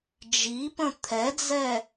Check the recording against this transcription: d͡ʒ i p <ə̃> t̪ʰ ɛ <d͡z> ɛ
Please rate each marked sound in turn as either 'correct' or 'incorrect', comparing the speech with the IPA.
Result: correct, correct

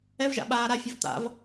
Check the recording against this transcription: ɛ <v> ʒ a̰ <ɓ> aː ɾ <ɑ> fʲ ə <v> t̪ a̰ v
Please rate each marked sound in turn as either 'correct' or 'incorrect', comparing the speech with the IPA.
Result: correct, correct, incorrect: a, correct

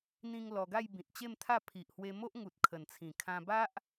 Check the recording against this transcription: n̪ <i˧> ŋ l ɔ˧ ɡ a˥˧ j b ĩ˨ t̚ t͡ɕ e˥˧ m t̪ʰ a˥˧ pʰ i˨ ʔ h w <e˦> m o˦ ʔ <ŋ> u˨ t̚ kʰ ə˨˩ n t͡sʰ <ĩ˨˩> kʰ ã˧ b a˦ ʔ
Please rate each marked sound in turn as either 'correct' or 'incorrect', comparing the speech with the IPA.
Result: incorrect: ĩ˧, incorrect: e˧, correct, correct

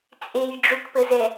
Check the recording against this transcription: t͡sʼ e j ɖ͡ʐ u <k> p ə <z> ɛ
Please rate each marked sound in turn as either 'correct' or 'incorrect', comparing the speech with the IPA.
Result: correct, correct

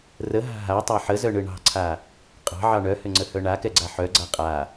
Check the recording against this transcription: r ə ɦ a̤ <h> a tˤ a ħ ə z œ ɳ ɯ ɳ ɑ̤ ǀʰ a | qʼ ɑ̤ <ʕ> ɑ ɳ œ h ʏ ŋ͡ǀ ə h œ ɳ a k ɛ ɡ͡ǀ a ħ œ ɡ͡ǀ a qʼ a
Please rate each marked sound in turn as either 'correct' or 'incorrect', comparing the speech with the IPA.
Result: incorrect: ɦ, correct

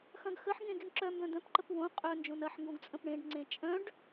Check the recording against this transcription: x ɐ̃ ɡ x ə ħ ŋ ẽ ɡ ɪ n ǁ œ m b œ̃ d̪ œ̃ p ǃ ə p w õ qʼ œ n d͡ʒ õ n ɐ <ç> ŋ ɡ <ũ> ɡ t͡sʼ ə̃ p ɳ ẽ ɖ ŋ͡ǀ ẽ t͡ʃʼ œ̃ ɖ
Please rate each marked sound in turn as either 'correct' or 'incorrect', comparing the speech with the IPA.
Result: incorrect: ħ, incorrect: õ

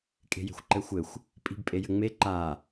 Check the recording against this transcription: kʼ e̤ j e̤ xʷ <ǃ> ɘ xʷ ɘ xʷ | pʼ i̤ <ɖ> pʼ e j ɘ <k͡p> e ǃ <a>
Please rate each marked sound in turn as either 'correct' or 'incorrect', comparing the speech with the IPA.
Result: correct, incorrect: b, incorrect: ŋ͡m, correct

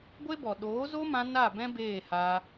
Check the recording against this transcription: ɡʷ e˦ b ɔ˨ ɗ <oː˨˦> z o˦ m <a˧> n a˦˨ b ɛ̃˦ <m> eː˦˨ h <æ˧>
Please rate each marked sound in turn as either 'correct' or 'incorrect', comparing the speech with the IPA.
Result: correct, incorrect: ã˧, incorrect: b, incorrect: a˧

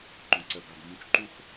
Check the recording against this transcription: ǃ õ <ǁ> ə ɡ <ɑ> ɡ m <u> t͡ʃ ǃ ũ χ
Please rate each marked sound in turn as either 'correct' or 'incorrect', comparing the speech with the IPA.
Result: incorrect: ǀ, correct, incorrect: ũ

